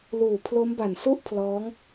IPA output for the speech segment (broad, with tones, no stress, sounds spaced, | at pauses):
l uː˨˩ pʰ l o˦˥ m b a˨˩ n s u˥˩ ʔ pʰ l ɔː˦˥ ŋ